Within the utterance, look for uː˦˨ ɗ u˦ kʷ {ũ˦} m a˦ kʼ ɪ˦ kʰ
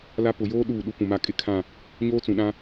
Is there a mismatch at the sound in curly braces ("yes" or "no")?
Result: yes